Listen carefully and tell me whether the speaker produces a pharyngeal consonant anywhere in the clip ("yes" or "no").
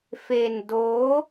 no